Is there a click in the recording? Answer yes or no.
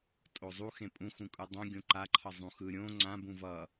yes